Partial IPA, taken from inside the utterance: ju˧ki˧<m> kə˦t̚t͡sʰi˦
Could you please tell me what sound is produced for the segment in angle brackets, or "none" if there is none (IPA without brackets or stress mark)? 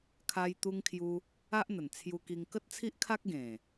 ŋ